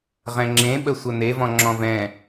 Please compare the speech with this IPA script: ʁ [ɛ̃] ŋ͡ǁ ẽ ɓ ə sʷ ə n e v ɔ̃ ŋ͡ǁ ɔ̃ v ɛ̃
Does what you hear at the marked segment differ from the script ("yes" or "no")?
no